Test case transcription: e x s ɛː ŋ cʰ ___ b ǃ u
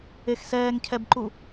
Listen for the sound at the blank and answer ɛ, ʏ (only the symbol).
ɛ